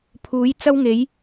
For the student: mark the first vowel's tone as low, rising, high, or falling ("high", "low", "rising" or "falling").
rising